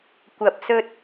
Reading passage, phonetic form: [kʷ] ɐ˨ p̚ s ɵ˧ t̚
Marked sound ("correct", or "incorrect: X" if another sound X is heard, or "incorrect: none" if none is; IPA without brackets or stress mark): correct